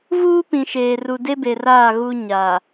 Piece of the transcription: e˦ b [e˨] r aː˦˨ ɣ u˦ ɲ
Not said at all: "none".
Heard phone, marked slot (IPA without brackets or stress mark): e˨